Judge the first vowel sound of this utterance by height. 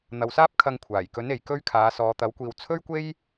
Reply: low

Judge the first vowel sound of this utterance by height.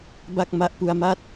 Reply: low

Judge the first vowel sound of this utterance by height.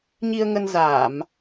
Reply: high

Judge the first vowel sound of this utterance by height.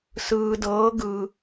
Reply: high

